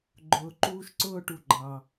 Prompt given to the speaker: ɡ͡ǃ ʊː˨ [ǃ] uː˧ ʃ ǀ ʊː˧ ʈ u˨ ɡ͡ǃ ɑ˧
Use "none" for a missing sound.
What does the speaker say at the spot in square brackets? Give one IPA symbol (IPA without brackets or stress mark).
ǃ